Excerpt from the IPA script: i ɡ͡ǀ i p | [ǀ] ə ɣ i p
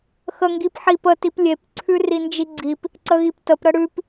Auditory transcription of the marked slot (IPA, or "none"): ǀ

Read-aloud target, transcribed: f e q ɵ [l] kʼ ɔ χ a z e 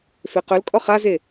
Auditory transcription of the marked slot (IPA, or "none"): l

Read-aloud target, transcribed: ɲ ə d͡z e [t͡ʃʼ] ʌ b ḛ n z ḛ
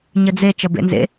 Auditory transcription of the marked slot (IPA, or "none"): t͡ʃ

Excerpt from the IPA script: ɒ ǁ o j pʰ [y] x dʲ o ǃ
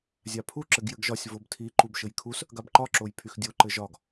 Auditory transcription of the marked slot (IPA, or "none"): y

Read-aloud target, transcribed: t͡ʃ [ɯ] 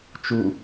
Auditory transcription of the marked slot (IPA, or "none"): u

